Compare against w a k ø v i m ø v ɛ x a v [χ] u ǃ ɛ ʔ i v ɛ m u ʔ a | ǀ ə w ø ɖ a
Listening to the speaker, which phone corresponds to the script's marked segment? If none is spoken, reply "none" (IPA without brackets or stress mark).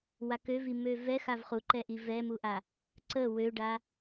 χ